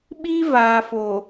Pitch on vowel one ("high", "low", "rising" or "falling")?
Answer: high